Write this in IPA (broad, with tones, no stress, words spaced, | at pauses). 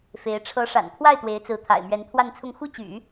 fe˧˥ɪ̯ ʈ͡ʂʰɤ˧˥ʂa̰˨˩npʰwa˥˩ɪ̯ t̪we˧˥ɪ̯t͡sɹ̩˧˥t̪ʰa̰˨˩ɪ̯ mɥɛ˧˥nt̪ʰwa˥˧nt͡sʰʊ˥˧ŋ xu˥˩t͡ɕy̰˨˩˦